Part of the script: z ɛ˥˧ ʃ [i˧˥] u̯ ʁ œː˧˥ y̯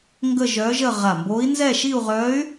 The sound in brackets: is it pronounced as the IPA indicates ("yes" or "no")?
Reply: no